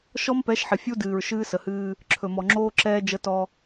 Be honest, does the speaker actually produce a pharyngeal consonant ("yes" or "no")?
yes